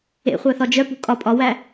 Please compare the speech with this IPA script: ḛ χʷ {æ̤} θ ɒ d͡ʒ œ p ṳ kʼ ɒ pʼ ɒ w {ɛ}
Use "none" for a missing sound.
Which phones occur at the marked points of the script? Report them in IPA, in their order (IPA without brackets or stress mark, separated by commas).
æ, æ